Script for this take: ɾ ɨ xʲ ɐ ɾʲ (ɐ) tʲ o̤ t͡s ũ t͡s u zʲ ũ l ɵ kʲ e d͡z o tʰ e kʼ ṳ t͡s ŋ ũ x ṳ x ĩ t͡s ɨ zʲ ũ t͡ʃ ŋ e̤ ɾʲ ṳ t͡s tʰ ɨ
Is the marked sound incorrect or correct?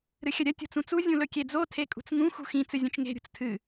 correct